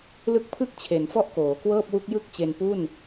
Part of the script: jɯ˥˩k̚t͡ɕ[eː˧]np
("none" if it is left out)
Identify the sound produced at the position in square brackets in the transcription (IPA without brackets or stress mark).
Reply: e˧